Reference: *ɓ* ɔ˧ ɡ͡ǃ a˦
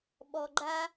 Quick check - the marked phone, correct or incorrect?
correct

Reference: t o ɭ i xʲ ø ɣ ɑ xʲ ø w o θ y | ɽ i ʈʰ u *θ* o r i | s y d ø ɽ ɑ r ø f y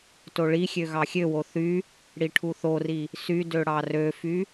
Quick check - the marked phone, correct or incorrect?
correct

